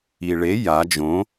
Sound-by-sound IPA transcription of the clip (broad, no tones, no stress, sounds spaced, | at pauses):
i ɭ e j a d͡ʒ õ